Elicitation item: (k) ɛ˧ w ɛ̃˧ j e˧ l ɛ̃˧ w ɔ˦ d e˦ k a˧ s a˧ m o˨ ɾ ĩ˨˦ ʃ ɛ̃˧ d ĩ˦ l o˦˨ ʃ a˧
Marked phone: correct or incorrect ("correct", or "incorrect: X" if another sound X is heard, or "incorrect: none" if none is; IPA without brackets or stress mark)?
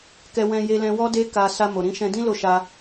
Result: correct